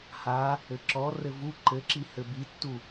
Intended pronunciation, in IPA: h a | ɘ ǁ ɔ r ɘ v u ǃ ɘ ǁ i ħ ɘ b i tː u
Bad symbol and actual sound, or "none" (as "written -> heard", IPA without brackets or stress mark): ħ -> h